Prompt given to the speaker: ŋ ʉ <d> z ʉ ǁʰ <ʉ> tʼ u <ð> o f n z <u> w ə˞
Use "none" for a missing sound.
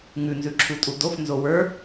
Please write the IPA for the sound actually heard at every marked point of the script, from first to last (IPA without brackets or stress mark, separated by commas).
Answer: n, u, d, o